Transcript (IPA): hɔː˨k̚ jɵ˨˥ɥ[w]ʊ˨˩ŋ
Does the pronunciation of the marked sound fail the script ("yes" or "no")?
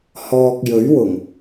no